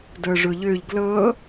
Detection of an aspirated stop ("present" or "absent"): absent